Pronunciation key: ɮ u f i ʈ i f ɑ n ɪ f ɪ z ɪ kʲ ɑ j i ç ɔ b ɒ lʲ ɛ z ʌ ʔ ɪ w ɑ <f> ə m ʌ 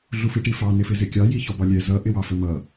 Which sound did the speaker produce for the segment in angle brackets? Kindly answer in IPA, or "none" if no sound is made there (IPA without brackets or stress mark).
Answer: f